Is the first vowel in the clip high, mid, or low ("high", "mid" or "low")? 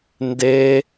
mid